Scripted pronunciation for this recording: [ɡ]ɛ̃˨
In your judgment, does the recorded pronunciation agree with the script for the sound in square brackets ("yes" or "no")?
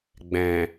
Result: no